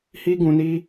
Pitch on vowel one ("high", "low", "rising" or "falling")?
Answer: high